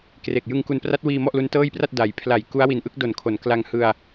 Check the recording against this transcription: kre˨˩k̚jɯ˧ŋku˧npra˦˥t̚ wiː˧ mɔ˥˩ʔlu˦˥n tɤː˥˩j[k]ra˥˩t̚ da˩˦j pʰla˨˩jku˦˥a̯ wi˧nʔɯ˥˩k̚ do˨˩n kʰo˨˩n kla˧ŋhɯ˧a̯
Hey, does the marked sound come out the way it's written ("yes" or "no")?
no